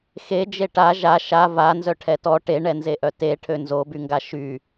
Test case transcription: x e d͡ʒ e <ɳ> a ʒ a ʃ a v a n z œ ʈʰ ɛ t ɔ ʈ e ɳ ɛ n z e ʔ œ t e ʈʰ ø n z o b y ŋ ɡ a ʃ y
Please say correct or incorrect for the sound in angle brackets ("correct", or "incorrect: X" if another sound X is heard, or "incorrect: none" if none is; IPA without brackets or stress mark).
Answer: incorrect: ʈ